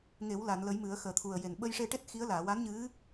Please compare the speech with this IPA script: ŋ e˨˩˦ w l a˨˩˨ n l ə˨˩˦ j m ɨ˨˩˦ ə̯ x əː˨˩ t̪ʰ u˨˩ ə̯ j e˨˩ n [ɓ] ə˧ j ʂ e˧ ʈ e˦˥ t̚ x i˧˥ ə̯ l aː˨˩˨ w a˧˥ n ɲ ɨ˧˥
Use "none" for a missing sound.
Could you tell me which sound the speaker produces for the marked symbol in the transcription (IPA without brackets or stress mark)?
ɓ